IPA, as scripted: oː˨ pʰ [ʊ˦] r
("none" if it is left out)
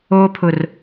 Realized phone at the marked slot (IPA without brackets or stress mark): ʊ˨